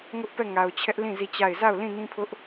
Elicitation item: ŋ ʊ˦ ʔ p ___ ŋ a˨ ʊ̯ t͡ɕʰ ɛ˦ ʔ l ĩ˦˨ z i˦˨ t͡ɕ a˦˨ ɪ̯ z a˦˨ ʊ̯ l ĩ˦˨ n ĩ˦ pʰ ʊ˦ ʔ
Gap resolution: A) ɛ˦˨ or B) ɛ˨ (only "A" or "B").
A